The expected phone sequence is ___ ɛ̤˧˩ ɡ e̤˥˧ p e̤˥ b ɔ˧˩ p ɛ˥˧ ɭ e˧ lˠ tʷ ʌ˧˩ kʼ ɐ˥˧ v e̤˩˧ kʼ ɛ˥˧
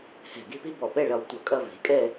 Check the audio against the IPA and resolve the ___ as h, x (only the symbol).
h